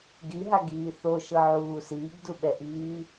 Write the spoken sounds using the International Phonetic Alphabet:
ɡiɦaɡiː θoʃɤʕuː siːɡduɓɛʔiː

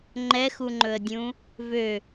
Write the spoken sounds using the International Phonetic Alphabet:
ŋ͡ǃɛxuŋ͡ǃɵə̯dʲũ | vø

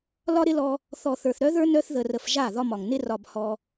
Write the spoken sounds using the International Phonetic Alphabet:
lɒ˦ɾɪ˦lɔ˧ | θɔ˨θə˞˨θɾœ˦ðə˞˦ nœ˧θðə˨rə˨f ʒa˦˨ ðɒ˧mɒ˨ŋ nɪ˧rɒ˨b hɔ˧

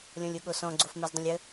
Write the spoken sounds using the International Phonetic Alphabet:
lʲɔ̃lʲoɠosɔ̃ ɡ͡ǀofmɛzdˤə̃lʲə

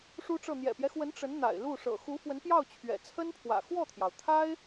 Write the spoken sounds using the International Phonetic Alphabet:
ʂu˥ʈ͡ʂɤ˥˩ n̪jɛ̰˨˩pjɛ˦xwə˧˥n ʈ͡ʂə˧˥nn̪a̰˨˩ɪ̯ lu˥˩ ʂɤ̰˨˩xu˧˥fwə˧˥npjɑ˥˩ʊ̯ t͡ɕʰɥɛ̰˨˩t͡sʰə˥npʰwä̰˨˩ xwɔ˥˩t̪ʰjɑ˩ʊ̯t̪ʰa˥ɪ̯

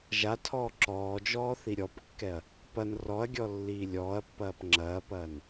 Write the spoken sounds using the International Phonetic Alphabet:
ʒatʰɔː ǁɔːd͡ʒɔː θiɾʲɔpkːɛɐ̯ | pɐn rɔɐ̯ɡʲɔ lːiːlʲɔːɐ̯pːɐːp ŋ͡ǁɐːpɐːn

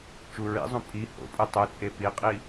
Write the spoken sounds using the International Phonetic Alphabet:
t͡ʃuɹḭzˤũ pʼi ho̰pʼɯ tˤɯt͡sʼe piqʼi

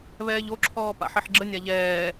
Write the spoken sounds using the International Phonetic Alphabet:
βɛːʎoǁʰɔː pa̰ħiħɡ͡ǁənʲa ʎɛː

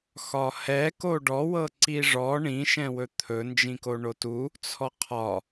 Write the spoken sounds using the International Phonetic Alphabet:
xɒhɛ koɖɔwɤ ǀiʐɔ ɳĩʃɛ̃wɵ t̪ʰɵ nd͡ʒĩkoɳotu | t͡sʰɔqʰɒ

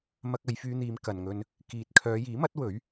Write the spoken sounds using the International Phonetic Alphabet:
mɐ˧k̚ɐ˨˧jfyː˧n̪iː˨˧m kɐ˨nŋɵ˧n | kiː˨t̚kʰœː˨˧ jiː˨˥mɐ˨˥t̚ wɵ˨˥ɥ

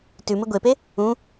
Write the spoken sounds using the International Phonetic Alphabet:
tʉmɪ ɡʷepe | ũ

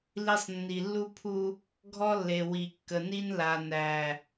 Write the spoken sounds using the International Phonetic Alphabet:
li˦sˤ nːi˨lːu˦ pʰu˦ | ɡʱɔ˦lːe˨ wi˨kːə˨ni˦n la˨næ˨

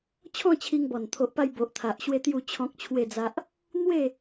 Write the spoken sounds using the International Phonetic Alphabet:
t͡ɕʰɔ̃˥˧t͡ɕʰi˧ŋbɔ˨˩n t̪ʰo˨ʔpa˧j bo˨ʔt̪ʰa˨ʔɕwe˦ t̪ju˥˧t͡ɕʰɔ̃˦k̚t͡ɕʰwe˥˧d͡za˦ʔ | n̪we˥˧

